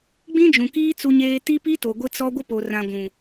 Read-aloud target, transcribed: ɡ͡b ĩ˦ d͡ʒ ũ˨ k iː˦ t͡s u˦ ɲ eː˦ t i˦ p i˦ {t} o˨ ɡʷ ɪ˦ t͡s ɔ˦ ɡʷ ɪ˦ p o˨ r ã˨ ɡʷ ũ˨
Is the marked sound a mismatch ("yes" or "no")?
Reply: no